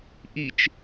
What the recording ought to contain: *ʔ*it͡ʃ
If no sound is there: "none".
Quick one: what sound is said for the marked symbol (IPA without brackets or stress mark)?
ʔ